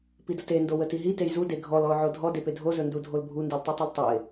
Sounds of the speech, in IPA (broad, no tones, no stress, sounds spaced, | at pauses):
p i d ə t e n d o w ə t i ɦ i t e j z u d e ɡʱ ɔ l ɔ ʊ̯ ʕ o dʱ ɔ d e p e dʱ o z ɵ n d u dʱ o l bʱ u n d i l tˤ u tˤ i l tˤ ɵ ɪ̯